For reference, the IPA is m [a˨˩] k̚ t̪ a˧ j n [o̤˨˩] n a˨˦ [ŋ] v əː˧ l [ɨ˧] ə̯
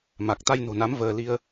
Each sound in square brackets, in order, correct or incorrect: correct, correct, incorrect: m, incorrect: i˧

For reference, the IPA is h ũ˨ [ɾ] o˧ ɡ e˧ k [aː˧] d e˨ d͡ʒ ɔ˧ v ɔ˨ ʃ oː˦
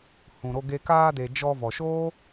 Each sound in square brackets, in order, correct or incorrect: correct, correct

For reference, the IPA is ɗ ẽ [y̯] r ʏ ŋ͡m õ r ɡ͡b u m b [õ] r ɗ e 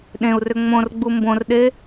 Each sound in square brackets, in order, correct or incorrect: incorrect: u̯, correct

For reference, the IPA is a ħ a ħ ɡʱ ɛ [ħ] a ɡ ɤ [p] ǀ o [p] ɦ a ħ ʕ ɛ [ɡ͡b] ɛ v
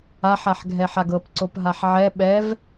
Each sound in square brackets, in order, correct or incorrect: correct, correct, correct, incorrect: ɓ

